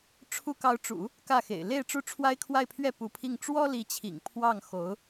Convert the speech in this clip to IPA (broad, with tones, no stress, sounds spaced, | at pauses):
ʈ͡ʂʰ u˧˥ k ɑ˧˥ ʊ̯ ʈ͡ʂ ṵ˨˩˦ | k ä˥˩ x ḛ˨˩ ɪ̯ l e˥˧ ɪ̯ ʈ͡ʂ u˥˩ ʈ͡ʂʰ w a˥ ɪ̯ kʰ w a˥˧ ɪ̯ pʰ ɥ ɛ˥˩ p u˧˥ pʰ i˥˩ ŋ ʈ͡ʂ w ɔ˥ l i˧˥ t͡ɕʰ ḭ˨˩ ŋ pʰ w ɑ˥˩ ŋ x o˧˥ ʊ̯